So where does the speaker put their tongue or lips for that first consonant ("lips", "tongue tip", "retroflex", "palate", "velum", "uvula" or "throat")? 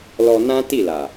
tongue tip